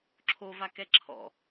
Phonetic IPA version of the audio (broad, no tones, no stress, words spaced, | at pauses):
ǁʰovakɛ ǁʰɔ̰